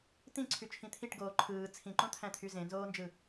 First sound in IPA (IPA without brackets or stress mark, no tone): t̪